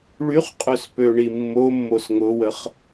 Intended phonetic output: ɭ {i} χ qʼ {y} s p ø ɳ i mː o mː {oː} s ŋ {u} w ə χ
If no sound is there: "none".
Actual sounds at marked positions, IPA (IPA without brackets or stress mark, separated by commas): y, ø, o, ʊ